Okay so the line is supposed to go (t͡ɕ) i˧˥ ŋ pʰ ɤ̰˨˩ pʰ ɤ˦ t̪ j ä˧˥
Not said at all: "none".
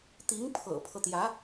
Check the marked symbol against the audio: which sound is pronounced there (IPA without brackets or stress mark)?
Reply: t̪